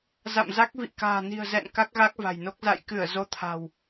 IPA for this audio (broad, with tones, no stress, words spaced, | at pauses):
za̰˧˨mza˦˥k̚ vḭ˧˨ka̤ː˨˩ni̤˨˩ə̯zɛ̰˧˨n ka˦˥k̚ɣa˦˥k̚va̤˨˩jno˦˥k̚ za̰˧˨jkɨ˧˩ə̯ zo˧t̪ʰa̤˨˩w